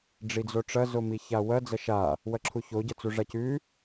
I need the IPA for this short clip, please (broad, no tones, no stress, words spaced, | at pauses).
ɖ͡ʐid͡zoʈ͡ʂɐ zomiçawɐ d͡zɐʃa | wɐǁʰuço ɟɐt͡suʐacʉ